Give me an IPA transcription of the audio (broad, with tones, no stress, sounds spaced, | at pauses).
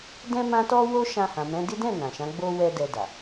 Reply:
d ɛ̃˦ m ã˦ t ɔ˦ w o˦ ʃ ã˧ h ã˨ m ɛ̃˨˦ d i˦ d ɛ̃˦˨ n ã˨ ʃ ã˨˦ ɡ͡b o˦ w ɛ˦ d ɛ˧ d a˨